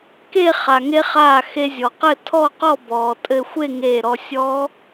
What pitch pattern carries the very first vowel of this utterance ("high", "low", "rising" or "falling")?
falling